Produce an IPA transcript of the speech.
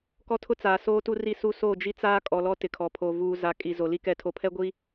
k ɔ˦ tʰ ʊ˦ t͡s aː˨ s oː˦ t u˦ r i˦˨ s u˦ s oː˦˨ d͡ʒ i˦ t͡s aː˦ kʼ ɔ˨ l ɔ˦ t ɪ˨ kʰ ɔ˨ pʰ oː˨ v uː˨ z a˨ kʼ i˨ z o˨ l i˦ k ɛ˨ tʰ o˨ pʰ ɛ˦ ɡʷ i˦

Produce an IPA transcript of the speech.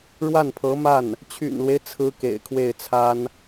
ɻ w a˥˩ n pʰ ɤ˧˥ m a˥˩ n | t͡ɕʰ y̰˨˩ n l w e˦ ɪ̯ t͡sʰ ɹ̩˥ k ḛ˨˩ ɪ̯ kʰ w e˥˩ ɪ̯ t͡sʰ a˥ n

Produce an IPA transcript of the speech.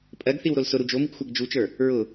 pʼ ɜ ɡ θ i w ɾ o l s ʊ ɾ u d͡ʒ o m i ɡ xʷ a ɡ d͡ʒ u t͡ʃ ə˞ | ɹ ʊ

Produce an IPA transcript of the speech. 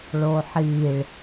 ɭ o ħ i ɭ

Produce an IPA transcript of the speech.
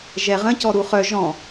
ʒ ɛ ʁ ə̃ c ɔ ɾ u χ œ ʒ ɔ̃

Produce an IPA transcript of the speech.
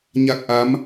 ɲ a˦˥ k̚ ʔ a˧˥ m

